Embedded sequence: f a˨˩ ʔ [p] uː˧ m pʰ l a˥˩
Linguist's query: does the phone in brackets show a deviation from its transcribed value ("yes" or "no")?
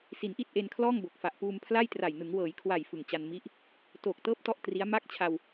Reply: no